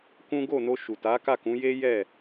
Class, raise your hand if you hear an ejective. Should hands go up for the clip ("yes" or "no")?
no